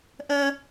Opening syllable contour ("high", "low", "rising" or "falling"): high